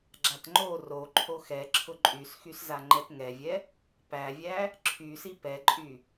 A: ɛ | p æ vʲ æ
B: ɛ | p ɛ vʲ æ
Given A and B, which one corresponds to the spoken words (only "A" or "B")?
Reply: A